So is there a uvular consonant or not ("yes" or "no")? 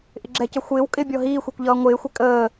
no